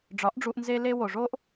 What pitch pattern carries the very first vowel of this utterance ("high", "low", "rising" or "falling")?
rising